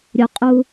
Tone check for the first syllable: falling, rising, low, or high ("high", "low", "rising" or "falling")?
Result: low